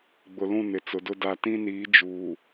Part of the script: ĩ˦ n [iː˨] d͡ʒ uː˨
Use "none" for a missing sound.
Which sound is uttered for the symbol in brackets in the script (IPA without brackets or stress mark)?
iː˨˦